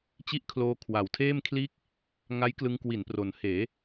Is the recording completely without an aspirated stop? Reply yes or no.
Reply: no